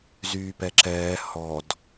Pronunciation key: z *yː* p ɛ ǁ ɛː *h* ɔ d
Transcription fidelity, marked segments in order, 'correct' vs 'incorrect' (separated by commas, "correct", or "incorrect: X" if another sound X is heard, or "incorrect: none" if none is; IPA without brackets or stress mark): correct, correct